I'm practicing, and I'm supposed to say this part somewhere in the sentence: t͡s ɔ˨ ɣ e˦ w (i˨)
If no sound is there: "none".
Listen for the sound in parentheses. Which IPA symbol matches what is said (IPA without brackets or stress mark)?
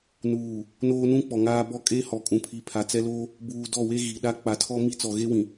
ĩ˨